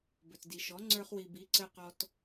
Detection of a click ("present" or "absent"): present